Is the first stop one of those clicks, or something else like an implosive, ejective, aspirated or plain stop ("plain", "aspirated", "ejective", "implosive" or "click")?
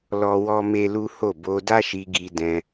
plain